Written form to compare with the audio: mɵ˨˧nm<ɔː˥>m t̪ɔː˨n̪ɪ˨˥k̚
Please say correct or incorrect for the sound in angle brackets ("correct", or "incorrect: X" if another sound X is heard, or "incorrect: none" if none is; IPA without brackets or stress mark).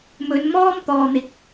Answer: correct